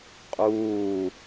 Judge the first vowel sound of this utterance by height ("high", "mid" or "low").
high